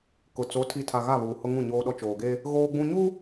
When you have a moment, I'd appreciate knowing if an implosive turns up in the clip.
yes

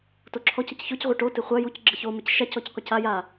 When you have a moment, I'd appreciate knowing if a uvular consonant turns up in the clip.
yes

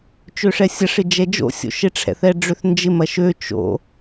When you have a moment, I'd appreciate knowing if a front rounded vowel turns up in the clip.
yes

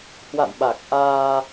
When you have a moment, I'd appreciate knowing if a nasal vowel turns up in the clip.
no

